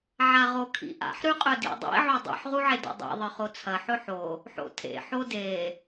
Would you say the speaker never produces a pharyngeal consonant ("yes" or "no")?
no